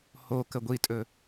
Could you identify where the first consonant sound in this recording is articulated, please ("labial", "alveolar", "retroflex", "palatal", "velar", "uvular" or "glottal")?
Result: glottal